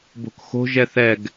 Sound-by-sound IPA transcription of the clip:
b o̤ k x o̤ ʒ ɛ θ ɛ ɡ

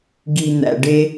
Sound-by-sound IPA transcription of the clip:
ɡ i˨ n̪ æ̰˨ ɖ e˦

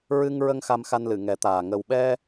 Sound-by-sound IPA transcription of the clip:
ɹ ɨ˧ ŋ ɹ ə˧ ŋ x a˧ m x a˧ n l ɨ˨˩˨ ŋ ɛ˨˩˦ t̪ aː˨˩ ŋ ə˨˩ w ɓ ɛ˧

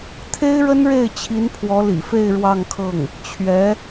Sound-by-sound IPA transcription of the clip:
t̪ʰ e˥ ɪ̯ ɻ ə˥ n ɻ e˥˩ ɪ̯ t͡ɕʰ i˧˥ n pʰ w ɔ˧˥ l ḭ˨˩ f e˥˧ ɪ̯ ɻ w ɑ˥˧ ŋ kʰ ɤ˥˩ ŋ | t͡ɕʰ ɥ ɛ˧˥

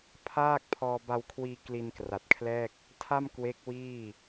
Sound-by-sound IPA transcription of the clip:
pʰ aː˥˩ k̚ pʰ ɔː˧ b a˧ w kʰ w iː˧ k l i˧ n k r a˨˩ t̚ kʰ l ɛː˥˩ k̚ | tʰ a˥˩ m k w e˦˥ k̚ w iː˥˩

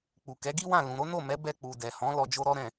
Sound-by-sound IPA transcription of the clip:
k͡p u˨ k ɛ˨˦ ɡ i˦ w ã˦˨ l ũ˨ ɾ o˨˦ n o˦˨ m ɛ˨˦ b ɛ˧ k͡p u˨ d ɛ˨ h ɔ̃˨˦ l ɔ˧ d͡ʒ o˦ ɾ ɔ˦ ɾ ɛ̃˦˨

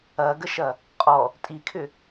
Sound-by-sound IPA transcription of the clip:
ɐ ɡ ə ʃ ɐ | qʼ ɔ | tʼ i kʰ ʏ

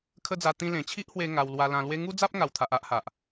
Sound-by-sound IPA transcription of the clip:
kʰ ə˦ d͡z a˧ t̪ ĩ˧ l ẽ˨˩ t͡ɕʰ i˦ ʔ h w e˧ ŋ a˧ w l w a˧ l ã˧ l w e˦ ŋ u˦ d͡z a˦ p̚ ŋ a˨˩ w t̪ʰ a˨ ʔ a˦ ʔ h a˨ ʔ

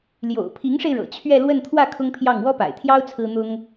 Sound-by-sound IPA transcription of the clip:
l j o̰˨˩ ʊ̯ pʰ i˧˥ ŋ ʂ e˧ ɪ̯ ɻ ɤ̰˨˩ t͡ɕʰ ɥ ɛ˥˧ l w ə˥˧ n t̪ʰ w ä˥˩ kʰ ʊ˥ ŋ pʰ j ɑ˥˩ ŋ w ɔ˥ p a̰˨˩ ɪ̯ t̪ʰ j ɑ˥ ʊ̯ t͡sʰ ɹ̩˥ n̪ ʊ˥ ŋ

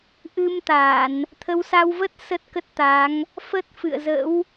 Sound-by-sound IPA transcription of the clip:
ʔ ɨ˧ m t̪ a˧˩˨ n | t̪ʰ ə˨˦ w s a˧ w v ə˦˥ t̚ s ə˦˥ t̚ k ə˦˥ t̚ t̪ a˨˦ ŋ | f ə˦˥ t̚ f ɨ̰˧˨ ə̯ z ə̰˧˥ w

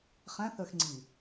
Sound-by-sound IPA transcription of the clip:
χ æ̃ θ ə˞ x ŋ͡ǀ i

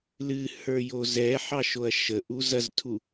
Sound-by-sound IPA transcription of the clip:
l ɨ h ə˞ j o z ɛ ħ ɑ ʃ o ɐ̯ ʃ ə ʔ u z ɐ z tʰ u

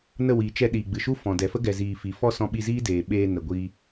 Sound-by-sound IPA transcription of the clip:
n ə˦˨ w iː˨ t͡ʃ ɛ˧ ɗ iː˨ ɡ͡b ɨ˨ ʃ u˦ f ɔ̃˨ d ɛ˨ f ə˦ ɡ ɛ˨ z iː˨ f i˨ f ɔ˦ s ɔ̃˧ ɓ i˧ z iː˦ d eː˨ ɓ eː˧ n ə˨ ɡʷ iː˧

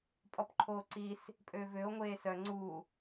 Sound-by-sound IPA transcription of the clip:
pʼ ɔ p ǃʰ oː ǀ i s | pʼ ø v ø o̯ ŋʷ eː s œ ŋ͡ǀ u

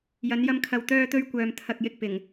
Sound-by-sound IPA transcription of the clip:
j ɐ˨˧ n j ɐ˧ m kʰ ɐ˨ w t̪ œː˧ t̪ ɵ˧ ɥ kʷ œː˨ m t̪ʰ ɐ˨ k̚ j ɪ˧ k̚ p ɪ˨˩ ŋ

